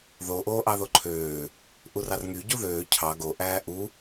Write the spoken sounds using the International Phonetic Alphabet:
ð o ʔ oː ʔ ɑ ð o ǃʰ øː | ʔ u r ɑ r ŋ y ɟ u ð øː cʰ ɑ ɡ o ʔ æː ʔ u

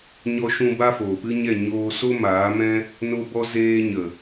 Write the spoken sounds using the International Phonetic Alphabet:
ɲ ɔ˧ ʃ ũ˧ b a˦ f oː˨ p ɨ˦ ɲ ɛ˦˨ ɲ oː˧ s o˦ m aː˨˦ m ɛ̃˦ | n o˧ b ɔ˧ z eː˧ ɲ ə˨

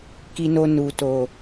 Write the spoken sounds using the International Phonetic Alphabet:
k i˧ n o˧ n u˨ t o˨

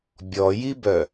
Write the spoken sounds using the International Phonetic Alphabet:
bʲ ɔ j i b œ

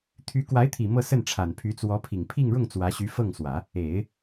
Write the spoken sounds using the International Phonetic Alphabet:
t̪ʰ y˧˥ k w a˧˥ ɪ̯ t̪ʰ i˨˩ m ɤ˥˧ s ə˥˩ n ʈ͡ʂʰ a˨˩ n pʰ y˧˥ t͡s w ɔ˧˥ pʰ i˨˩ ŋ pʰ i˥˧ ŋ ɻ ʊ˥˩ ŋ t͡s w ä˧˥ ɕ y˧˥ f ɤ˥˩ ŋ s w ä˨˩˦ | e˨˩˦ ɪ̯

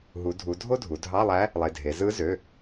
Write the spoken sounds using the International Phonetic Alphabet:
ɦ u˩˧ dʱ u˩˧ dʱ o˥ dʱ u˩˧ dʱ ɑ˧˥˧ lˠ æ˧˥ | lˠ e˩˧˩ dʱ e˩˧ z ɯ˧˥ z ø˩˧˩

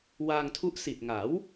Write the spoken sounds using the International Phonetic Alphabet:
w aː˧ ŋ tʰ u˦˥ ʔ s i˨˩ t̚ ŋ a˩˦ w

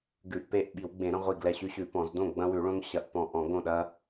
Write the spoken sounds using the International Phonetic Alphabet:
ɡ ʉ˧˩˧ ʔ p e˥˩ ʔ ɓ i˧˩˧ w ɡ͡b ẽ˧˩˧ ɾ ɐ̃˦ ʁʷ i˧˩ ɡ l ɛ˧˩ ɕ ʉ˦ ɕ ʉ˧˩˧ p ɔ̃˧˩˧ z d õ˥˩ ɡ͡b ɐ̃˦ w ʉ˧˩˧ ɭ õ˦ ŋ ɕ ɐ˧˩˧ ʔ p ɔ̃˧˩ ʔ ɔ̃˧˩˧ ɡ õ˥˩ ɗ ɐ˦

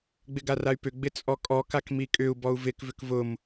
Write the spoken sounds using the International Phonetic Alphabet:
ɡ͡b ɪ ɡ a r a y̯ p ʏ ɡ͡b ɪ t͡sʼ ɔ kʼ ɔ k a k m i kʼ ʏ u̯ b ɔ u̯ v ɪ k v ʏ k v ʊ m

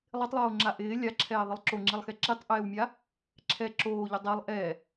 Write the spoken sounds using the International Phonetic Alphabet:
lˠ ɪ tˤ lˠ oː ŋ͡ǁ a ʔ ɪː lʲ a ǁʰ ɛː ðˤ ɪ lˠ ǁ o ŋ͡ǁ i lˠ x ɛ ǁ i tˤ ʔ ɛː w mʲ a | ǁʰ ɛ ǁ oː ʎ ʊ dˤ ɛ lˠ ʔ ɛ

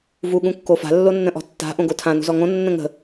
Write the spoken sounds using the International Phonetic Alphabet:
v u ɠ ũ kː o f a̤ lː o nː ə̃ ʔ ɔ̤ tː a̤ ʔ õ ɡ o tʰ ã n ṳ z ɔ ŋ õ nː ə̃ ŋ ə̤

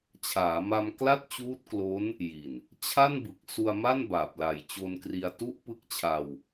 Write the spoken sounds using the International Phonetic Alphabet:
t͡ɕʰ aː˩˦ m a˧ m k l a˥˩ t̚ t͡ɕ uː˦˥ t̚ k l o˦˥ n | j i˨˩ n | t͡ɕʰ a˥˩ n b ɯ˨˩ k̚ s u˧ a̯ m a˥˩ n b aː˨˩ p̚ l a˨˩ j t͡ɕ o˧ n k r i˧ a̯ t u˦˥ ʔ p ɯ˦˥ k̚ t͡ɕʰ a˧ w

